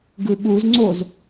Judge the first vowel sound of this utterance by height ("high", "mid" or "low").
high